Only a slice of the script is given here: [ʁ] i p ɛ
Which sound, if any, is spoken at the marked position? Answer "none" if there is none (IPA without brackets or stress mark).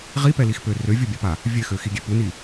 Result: ʁ